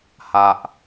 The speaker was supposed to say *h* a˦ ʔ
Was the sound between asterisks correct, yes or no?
yes